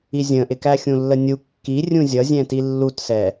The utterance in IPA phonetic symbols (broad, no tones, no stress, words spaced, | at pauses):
izʲə̃ʔɪkæ xʲũlːənʲu kːi rʲũzʲʌzʲɛ̃ tilːutsɛ